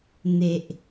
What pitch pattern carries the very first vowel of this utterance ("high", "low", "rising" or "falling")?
low